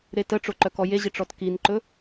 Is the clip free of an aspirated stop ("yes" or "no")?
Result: yes